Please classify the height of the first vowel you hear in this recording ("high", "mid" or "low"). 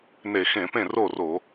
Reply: mid